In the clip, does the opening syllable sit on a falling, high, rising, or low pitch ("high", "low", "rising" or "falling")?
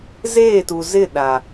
falling